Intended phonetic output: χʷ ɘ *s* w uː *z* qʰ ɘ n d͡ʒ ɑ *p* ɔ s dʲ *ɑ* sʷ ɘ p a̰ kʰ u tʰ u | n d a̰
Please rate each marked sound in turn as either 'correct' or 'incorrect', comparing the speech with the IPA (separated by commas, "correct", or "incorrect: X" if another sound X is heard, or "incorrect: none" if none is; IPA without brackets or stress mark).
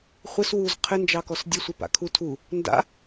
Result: correct, correct, incorrect: k, incorrect: ə